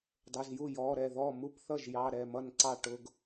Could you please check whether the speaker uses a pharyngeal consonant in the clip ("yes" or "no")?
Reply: no